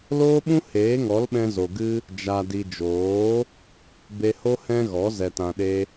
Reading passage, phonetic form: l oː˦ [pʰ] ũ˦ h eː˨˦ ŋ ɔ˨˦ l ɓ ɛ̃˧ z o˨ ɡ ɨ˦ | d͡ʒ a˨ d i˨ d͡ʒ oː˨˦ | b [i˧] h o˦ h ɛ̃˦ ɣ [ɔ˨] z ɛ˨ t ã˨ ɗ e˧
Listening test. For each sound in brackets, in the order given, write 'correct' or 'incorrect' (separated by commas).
incorrect, incorrect, incorrect